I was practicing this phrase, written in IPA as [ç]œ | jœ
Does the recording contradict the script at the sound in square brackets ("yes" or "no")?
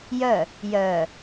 yes